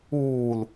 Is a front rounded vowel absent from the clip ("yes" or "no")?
yes